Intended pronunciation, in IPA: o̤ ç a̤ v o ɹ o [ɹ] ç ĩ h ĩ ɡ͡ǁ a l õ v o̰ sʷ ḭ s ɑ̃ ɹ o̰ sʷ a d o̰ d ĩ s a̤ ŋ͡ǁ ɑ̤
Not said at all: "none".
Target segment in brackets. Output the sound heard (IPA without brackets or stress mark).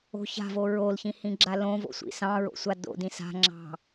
l